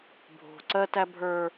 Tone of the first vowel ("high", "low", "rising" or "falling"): low